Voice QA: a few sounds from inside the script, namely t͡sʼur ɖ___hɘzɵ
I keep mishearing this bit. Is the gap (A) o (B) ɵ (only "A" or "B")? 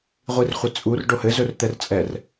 A